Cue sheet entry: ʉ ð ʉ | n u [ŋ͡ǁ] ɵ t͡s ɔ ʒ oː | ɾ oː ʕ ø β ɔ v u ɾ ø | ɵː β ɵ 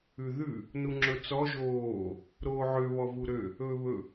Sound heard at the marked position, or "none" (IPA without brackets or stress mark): ŋ͡ǁ